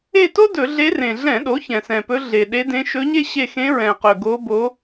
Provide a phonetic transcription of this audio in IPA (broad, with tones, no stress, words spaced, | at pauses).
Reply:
e˦˨to˥dɵ˧˩˧ ɮe˧˥rẽ˨˩ ɮɛ̃˧˩˧ɗo˩˥ çɛ̃˨˩sɛ̃˨˩pɵ˧˥ ɮe˨˩ ɗe˧˥dẽ˧˥ ʃɵ˧˥ɲe˥ ɕe˦˨xẽ˧˥ ɹɛ̃˨˩qɵ˨˩ ɡo˧˥bo˧˥